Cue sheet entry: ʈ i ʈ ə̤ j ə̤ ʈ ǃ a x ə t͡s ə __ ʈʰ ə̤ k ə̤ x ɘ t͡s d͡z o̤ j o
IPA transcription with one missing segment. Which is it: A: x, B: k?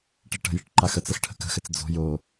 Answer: A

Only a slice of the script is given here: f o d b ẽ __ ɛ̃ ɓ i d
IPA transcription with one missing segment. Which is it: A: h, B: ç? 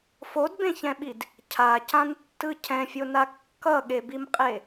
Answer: B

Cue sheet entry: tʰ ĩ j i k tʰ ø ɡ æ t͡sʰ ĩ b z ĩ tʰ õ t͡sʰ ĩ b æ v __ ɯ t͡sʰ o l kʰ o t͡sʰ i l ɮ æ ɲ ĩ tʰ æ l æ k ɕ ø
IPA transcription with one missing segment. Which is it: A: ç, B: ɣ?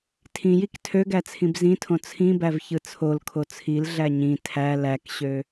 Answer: A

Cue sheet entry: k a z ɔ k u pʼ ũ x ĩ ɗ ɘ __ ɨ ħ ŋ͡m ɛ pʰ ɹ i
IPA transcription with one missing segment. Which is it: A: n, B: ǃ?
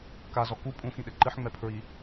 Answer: B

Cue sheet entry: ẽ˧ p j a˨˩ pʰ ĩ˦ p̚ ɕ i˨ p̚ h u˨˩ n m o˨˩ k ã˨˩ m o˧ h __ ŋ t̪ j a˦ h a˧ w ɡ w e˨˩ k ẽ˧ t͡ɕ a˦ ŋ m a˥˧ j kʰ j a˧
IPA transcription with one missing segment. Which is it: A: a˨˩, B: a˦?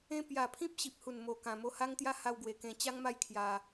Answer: B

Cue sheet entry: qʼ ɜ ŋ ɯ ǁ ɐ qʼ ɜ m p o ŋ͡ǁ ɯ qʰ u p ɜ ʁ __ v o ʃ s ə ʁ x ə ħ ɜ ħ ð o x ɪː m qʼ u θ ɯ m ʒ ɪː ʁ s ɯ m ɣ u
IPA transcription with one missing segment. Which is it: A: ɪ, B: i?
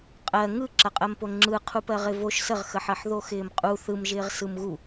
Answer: A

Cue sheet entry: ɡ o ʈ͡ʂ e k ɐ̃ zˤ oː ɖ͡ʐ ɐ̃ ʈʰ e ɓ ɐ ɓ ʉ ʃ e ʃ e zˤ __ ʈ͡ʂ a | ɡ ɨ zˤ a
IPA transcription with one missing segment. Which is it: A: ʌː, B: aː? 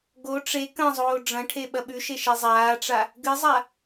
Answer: B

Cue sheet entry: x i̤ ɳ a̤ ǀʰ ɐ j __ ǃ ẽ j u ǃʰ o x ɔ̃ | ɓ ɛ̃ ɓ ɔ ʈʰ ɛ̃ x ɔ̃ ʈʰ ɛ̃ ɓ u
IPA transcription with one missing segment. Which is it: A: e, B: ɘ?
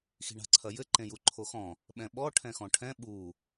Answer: B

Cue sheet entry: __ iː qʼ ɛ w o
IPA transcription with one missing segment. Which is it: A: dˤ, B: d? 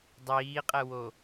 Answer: A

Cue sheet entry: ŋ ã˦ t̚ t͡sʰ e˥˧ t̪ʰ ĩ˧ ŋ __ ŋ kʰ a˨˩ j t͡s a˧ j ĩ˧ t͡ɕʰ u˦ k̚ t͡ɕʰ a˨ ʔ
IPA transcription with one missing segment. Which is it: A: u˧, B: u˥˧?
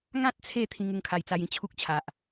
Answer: A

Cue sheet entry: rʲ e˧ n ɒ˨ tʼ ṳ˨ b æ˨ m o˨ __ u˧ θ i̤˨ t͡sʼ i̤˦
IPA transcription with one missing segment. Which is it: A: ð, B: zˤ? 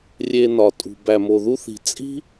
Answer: A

